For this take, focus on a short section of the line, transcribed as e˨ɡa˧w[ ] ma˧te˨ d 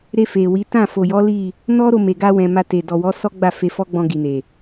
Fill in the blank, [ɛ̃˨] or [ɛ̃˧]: ɛ̃˨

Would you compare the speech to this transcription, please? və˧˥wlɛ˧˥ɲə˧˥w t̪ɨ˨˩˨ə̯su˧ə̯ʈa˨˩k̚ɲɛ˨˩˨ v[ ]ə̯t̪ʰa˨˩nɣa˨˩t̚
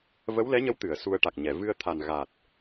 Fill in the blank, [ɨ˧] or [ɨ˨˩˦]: ɨ˧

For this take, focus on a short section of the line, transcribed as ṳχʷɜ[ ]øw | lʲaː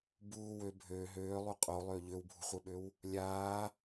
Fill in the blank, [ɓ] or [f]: ɓ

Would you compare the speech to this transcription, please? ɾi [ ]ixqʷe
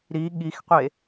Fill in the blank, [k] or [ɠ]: ɠ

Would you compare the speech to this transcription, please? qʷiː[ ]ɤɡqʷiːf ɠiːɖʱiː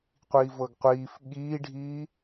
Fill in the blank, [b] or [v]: v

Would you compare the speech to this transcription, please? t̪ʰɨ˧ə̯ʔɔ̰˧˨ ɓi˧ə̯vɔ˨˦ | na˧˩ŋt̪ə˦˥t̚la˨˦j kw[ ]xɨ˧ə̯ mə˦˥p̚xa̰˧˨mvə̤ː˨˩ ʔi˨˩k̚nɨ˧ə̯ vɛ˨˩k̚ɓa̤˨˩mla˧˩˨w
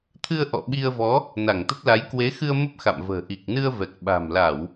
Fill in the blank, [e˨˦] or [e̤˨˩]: e˨˦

